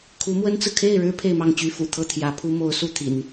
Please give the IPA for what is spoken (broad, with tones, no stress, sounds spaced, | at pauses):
kʰ u˧˥ m w ə˥ n t͡s ɹ̩˨ kʰ e˥˩ ɪ̯ ɻ ɻ̩˥ pʰ e˥˧ ɪ̯ m ɑ˥˩ ŋ t͡ɕ y˥ f ṵ˨˩ t̪ʰ ɤ˥˩ t̪ʰ j ä˧˥ pʰ u˥ m o˧˥ ʊ̯ s u˥˩ t̪ʰ ḭ˨˩˦ n